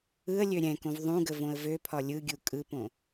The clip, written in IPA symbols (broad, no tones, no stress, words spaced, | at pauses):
ɯə̯ lʲøɾʲɛ̃kõv ðˤũɡə võə̯vøpʰɒ lʲɯɡʲu kʼɯpõ